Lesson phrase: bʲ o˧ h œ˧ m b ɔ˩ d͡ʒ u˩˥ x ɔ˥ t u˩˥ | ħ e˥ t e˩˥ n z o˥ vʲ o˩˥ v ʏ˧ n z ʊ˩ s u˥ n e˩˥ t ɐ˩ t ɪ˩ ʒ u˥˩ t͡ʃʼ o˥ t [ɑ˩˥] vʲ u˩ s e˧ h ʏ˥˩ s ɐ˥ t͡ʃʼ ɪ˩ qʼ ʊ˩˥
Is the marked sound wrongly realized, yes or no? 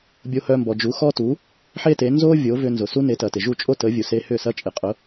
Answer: yes